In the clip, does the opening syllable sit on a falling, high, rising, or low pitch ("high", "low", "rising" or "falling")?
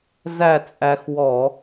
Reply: falling